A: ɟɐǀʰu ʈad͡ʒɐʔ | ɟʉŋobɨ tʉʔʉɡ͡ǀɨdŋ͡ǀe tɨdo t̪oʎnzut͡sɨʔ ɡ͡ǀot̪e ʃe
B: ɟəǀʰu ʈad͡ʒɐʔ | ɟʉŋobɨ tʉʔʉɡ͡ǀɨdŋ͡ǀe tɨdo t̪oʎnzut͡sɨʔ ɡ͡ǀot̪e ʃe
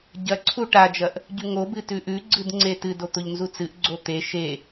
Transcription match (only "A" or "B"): A